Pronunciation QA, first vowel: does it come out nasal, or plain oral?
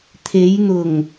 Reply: oral